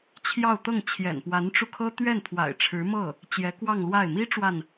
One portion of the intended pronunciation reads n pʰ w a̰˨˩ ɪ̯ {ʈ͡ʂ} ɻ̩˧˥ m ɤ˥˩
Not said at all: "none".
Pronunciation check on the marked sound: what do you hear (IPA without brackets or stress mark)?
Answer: ʈ͡ʂʰ